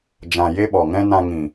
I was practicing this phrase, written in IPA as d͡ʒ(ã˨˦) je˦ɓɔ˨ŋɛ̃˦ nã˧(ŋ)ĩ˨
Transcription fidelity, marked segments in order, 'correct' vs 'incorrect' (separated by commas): incorrect, correct